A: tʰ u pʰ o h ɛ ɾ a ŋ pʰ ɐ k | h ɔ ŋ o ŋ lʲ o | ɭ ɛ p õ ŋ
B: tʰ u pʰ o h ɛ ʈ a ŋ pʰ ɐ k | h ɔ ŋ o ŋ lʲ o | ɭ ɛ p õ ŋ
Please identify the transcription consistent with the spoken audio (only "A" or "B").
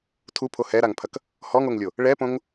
A